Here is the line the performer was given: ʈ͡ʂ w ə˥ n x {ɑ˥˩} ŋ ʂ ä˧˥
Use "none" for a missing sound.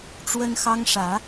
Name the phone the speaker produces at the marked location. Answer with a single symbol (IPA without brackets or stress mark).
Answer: ɑ˥